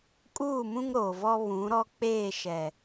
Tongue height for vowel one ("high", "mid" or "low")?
high